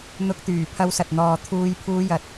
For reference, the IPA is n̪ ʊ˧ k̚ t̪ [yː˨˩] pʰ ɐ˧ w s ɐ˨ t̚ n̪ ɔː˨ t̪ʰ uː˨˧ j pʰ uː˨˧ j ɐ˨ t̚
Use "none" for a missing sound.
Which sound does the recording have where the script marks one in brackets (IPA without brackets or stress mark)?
yː˨˩